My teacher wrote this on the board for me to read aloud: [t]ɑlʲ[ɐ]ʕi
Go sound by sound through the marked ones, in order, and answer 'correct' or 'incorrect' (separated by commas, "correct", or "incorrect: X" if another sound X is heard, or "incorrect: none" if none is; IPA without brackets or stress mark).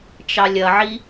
incorrect: t͡ʃ, correct